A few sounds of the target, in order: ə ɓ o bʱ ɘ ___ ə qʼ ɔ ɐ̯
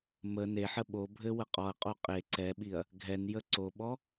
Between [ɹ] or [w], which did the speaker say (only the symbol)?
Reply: w